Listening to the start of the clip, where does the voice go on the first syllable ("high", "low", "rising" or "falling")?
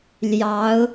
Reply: rising